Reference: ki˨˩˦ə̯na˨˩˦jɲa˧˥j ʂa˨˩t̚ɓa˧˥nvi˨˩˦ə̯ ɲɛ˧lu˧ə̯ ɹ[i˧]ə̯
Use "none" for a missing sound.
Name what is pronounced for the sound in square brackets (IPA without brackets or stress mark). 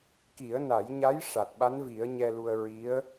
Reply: i˧˥